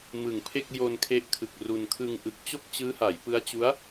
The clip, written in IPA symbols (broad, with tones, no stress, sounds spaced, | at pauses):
m ɯ˨˩ ŋ pʰ e˥˩ k̚ j o˧ n kʰ e˦˥ ʔ kʰ ɯ˨˩ k̚ r u˧ n kʰ ɯ˧ ŋ ʔ ɯ˨˩ k̚ t͡ɕ o˥˩ k̚ t͡ɕ ɯː˦˥ h a˩˦ j p ɯ˦˥ a̯ t͡ɕ u˦˥ a̯